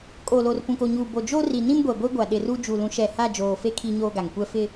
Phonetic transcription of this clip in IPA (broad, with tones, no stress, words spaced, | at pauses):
kʼo˨lo˨r pũ˨ko˨ɲuː˨ bo˨d͡ʒo˦ ri˨nĩ˦mɡʷɛ˨ ɡʷi˦ɡʷa˨ ɗɪ˨ru˦ d͡ʒu˨lũ˨˦ʃɛ˨ha˦˨ d͡ʒoː˨fe˦ kʰi˦ ɲoː˦ɡa˨ŋkʷɛ˦ fɪ˦